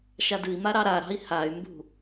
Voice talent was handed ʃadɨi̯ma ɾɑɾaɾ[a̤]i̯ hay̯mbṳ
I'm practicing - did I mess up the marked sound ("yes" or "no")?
yes